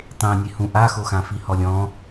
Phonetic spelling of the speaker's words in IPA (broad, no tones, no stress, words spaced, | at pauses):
tˤẽnʲe hũʔaxoxã fihɔlʲɔ̃